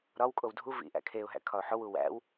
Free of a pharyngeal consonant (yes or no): no